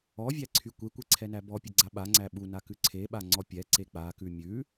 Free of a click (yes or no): no